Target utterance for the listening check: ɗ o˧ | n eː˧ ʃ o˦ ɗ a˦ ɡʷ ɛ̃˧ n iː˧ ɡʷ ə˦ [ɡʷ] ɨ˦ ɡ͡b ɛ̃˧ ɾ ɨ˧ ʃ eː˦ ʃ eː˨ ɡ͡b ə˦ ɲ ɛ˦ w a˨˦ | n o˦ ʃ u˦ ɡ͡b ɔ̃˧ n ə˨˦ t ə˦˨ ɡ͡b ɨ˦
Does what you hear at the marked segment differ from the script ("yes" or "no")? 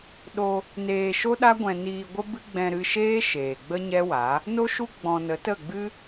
yes